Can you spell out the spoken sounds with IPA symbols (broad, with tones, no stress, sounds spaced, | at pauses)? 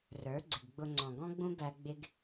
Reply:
r ə˞˨˦ ɡ͡ǀ ɪ˨ ɡ ɡ͡b ʊ˧ ŋ͡ǀ ɔ̃˨ ɡ ɔ̃˦ ɡ͡b ũ˦ b æ˧ ɡ͡b ɪ˦ ɡ